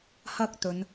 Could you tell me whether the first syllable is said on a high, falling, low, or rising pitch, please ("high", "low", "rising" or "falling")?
high